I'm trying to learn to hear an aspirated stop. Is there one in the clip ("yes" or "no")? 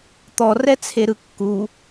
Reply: yes